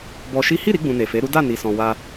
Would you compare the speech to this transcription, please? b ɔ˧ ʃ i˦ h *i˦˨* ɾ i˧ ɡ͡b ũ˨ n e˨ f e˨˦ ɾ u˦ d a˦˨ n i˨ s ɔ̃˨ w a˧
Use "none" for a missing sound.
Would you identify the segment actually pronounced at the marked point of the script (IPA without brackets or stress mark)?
i˦˨